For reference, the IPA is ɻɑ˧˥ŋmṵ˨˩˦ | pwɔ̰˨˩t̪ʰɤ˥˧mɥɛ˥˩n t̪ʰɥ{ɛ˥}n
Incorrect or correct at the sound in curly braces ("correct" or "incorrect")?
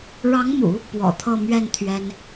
correct